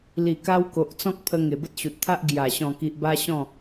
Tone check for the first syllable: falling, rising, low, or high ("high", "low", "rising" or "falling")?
low